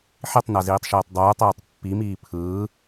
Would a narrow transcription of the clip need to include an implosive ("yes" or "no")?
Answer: no